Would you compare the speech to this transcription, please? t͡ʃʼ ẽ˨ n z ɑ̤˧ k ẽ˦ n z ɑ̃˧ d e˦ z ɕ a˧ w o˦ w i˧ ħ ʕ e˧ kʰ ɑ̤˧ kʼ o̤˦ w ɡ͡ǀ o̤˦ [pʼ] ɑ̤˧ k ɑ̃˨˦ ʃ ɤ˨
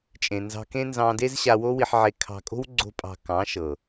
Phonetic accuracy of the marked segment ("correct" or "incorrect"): correct